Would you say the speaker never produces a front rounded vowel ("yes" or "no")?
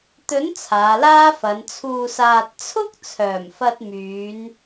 no